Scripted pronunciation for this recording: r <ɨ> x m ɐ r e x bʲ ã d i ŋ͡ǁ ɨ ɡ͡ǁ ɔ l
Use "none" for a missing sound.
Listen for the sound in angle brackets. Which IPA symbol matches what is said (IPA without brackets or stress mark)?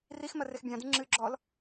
i